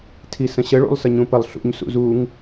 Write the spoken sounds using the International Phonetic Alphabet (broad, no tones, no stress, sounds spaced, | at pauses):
tʰ i s ə̃ ɕ ə ɭ ṵ lˠ s ə ɲ ũ p ə lˠ ɬ ṵ ɲ s ṵ z u ŋ